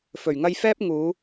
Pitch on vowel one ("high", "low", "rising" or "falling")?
low